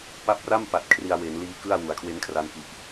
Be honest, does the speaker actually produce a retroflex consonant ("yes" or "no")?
no